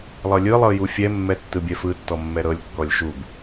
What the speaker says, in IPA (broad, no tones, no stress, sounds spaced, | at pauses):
lˠ ɤ lʲ ɯ lˠ ɤ j u fʲ ɛ mː ɛ tː ɯ bʲ ɛ f ɯ tː ɔ mː ɛ ɾ ɤ lʲ kː ɔ lʲ ʃ u b